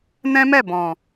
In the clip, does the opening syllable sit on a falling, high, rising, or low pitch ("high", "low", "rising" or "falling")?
high